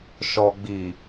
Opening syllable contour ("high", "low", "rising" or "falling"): low